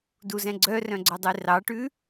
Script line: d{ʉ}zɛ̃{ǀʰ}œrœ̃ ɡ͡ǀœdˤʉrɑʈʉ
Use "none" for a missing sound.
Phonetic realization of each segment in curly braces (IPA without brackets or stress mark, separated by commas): u, ɡ͡ǀ